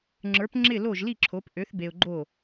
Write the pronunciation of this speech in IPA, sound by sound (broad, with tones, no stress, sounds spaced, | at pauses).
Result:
ŋ͡ǁ ə˞˩˥ p ŋ͡ǁ ɪ˥˩ l o˥˩ ʒ l i˥˩ ǁʰ o˩˥ p ʔ ø˩˥ θ b e˨ ʊ̯ ɡ͡ǃ o˥˩